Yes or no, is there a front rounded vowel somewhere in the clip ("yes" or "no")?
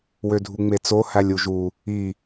yes